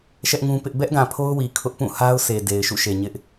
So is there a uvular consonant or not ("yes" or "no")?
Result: no